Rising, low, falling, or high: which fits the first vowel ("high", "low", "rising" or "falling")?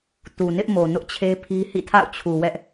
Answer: low